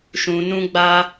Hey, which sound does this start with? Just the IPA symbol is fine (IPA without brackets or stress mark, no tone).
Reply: ʃ